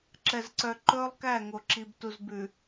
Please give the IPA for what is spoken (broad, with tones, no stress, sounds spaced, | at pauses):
ǁ ɛ˨ z ǀ œ˨ ǃ ɵː˦ lˠ k æ˦˨ ŋ o˨ ǁ i˨ b t u˨ z b ʉ˨